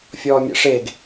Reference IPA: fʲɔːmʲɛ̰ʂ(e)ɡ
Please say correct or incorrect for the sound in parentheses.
correct